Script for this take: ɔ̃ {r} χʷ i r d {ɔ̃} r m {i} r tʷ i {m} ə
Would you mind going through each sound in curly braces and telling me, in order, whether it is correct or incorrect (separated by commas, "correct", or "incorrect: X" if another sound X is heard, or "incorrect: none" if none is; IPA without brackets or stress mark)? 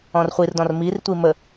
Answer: correct, correct, correct, correct